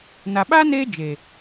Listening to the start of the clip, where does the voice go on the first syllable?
low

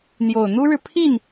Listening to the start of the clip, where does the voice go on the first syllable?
low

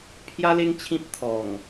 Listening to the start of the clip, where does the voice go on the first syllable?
high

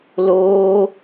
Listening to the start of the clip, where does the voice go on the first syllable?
high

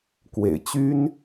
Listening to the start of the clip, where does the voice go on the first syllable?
low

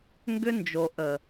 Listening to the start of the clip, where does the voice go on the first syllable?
high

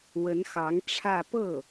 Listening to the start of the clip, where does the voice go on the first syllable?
rising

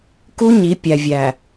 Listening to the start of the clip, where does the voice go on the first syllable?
high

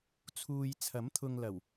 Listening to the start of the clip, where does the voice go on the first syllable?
low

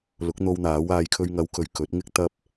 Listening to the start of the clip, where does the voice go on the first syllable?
rising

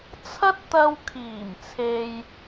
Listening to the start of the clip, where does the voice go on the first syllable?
high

